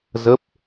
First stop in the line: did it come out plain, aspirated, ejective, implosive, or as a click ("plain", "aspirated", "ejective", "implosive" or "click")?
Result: plain